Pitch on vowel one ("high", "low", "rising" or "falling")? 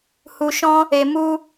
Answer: low